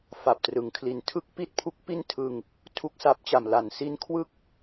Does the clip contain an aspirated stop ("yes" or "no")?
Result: yes